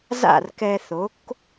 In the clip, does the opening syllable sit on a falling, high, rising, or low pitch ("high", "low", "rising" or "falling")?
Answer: falling